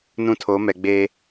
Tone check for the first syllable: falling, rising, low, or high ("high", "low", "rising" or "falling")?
high